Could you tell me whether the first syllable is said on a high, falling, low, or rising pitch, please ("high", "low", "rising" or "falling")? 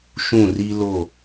falling